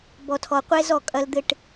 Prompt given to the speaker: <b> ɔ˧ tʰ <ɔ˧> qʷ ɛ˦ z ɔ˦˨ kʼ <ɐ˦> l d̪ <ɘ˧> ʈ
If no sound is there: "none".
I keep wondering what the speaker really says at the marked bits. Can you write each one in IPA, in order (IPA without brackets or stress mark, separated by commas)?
b, ɔ˧, ɐ˦, ɘ˧